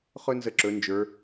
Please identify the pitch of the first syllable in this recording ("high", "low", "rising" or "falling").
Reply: high